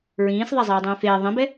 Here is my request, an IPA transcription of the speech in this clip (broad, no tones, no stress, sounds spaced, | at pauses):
ɹ ĩː s ðˤ a zˤ eː dˤ ĩː f eː ðˤ ĩ b ɛ